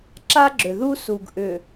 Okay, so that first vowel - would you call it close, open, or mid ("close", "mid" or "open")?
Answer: open